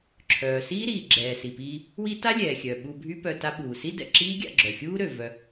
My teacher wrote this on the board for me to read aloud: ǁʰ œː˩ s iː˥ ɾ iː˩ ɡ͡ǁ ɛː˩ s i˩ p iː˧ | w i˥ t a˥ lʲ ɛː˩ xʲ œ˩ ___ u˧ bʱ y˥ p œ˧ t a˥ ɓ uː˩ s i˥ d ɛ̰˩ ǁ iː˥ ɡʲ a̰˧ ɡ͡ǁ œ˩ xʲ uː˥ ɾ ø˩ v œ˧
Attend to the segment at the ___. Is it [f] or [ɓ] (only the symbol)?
ɓ